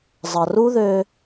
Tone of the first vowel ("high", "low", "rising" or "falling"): low